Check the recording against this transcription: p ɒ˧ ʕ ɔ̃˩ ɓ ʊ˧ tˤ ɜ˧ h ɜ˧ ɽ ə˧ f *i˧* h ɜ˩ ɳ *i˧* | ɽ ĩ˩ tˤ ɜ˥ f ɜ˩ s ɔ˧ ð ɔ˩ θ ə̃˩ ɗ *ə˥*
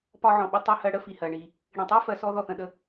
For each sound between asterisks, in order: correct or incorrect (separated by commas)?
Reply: incorrect, incorrect, incorrect